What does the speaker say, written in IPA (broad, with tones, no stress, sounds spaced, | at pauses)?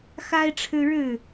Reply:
x a˦ ɪ̯ ʈ͡ʂʰ ɻ̩˦ ɻ ɻ̩˥˨